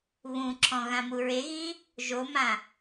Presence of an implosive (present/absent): absent